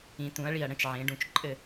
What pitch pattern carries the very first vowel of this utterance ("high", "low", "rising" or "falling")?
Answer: rising